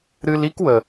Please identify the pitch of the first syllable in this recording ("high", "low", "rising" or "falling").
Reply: high